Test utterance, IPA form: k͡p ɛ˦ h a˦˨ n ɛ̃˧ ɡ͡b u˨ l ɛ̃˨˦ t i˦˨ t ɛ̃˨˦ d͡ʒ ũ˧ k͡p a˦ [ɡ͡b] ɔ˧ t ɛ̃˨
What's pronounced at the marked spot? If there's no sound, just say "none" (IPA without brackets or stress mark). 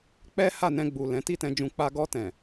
ɡ